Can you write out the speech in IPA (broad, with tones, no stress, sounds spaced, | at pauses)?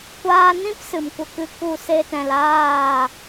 kʷ aː˧ n ĩ˦ p s ɨ˨ m kʷ ə˧ k ɨ˧ k u˦˨ s e˦ t ɛ̃˧ l aː˦˨